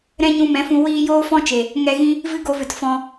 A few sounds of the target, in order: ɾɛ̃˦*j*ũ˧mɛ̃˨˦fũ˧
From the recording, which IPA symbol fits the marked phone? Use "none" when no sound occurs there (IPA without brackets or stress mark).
ɲ